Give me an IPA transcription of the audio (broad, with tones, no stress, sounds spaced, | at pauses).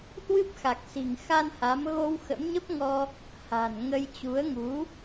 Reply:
h w ɨ˦˥ p̚ x a˨˩ k̚ s i̤˨˩ ŋ x a˧ n h a˨˦ m ɣ o˧ w x ə̰˧˥ m ɲ ə˦˥ p̚ ŋ ɔ˧ | h a̤˨˩ n ŋ ə˧ j t͡ɕ u˨˦ ə̯ ŋ u˨˦